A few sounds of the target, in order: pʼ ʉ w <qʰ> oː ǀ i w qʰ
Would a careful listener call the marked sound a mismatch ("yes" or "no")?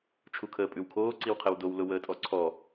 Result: yes